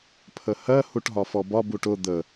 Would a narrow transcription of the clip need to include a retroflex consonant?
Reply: yes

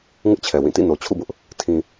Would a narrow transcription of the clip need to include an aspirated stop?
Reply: yes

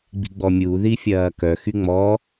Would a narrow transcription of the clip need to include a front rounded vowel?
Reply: yes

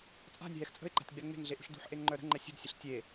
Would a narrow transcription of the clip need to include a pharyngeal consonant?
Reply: yes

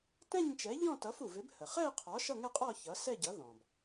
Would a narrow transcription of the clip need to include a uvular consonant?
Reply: yes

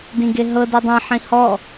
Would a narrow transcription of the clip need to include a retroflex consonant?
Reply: no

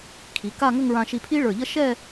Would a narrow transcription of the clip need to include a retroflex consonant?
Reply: yes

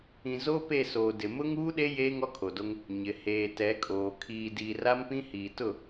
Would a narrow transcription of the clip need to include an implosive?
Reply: yes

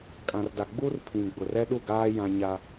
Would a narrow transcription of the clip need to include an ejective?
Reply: yes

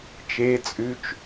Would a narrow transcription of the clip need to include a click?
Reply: no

